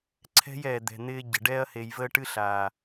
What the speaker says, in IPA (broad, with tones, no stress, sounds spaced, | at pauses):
ǀʰ ɛ̤˦ j ɛː˨ d̪ ɛ̤˨ n̪ ɪː˧ ɟ ə̤˨ ɖ ɛ˧ ɐ̯ h e˨ j v əː˧ ʈ ɨ˧ ɬ aː˨